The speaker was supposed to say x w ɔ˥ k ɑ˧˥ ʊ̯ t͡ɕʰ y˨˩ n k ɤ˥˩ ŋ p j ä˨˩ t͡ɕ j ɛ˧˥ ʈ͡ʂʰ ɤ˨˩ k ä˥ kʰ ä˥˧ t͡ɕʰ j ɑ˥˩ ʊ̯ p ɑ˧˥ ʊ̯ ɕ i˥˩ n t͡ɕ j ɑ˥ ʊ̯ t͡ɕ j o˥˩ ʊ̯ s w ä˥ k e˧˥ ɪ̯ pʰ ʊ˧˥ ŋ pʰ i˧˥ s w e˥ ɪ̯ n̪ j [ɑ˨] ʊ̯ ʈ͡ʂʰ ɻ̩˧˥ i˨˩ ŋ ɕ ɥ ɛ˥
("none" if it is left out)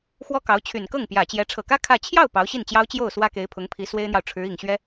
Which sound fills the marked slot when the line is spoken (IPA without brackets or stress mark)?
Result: ɑ˨